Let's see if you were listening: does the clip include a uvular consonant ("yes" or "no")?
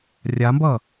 no